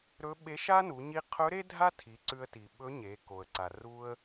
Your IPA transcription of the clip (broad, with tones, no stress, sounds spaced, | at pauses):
ɾ ɵ˧˥ ɓ e˧˥ ʃ a˥ n u˩˧ ɲ i˧ qʰ ɵ˧˥ ɾ e˥ dʱ a˥ tʰ i˩˧ ǀ ʉ˧ ə̯ t i˩ ɓ ɵ˧˥ ɲ e˩˧ k o˩ ə̯ ǀ a˩ r u˧ ə̯